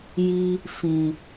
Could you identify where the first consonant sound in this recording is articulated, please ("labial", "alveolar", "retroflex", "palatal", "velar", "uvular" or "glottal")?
palatal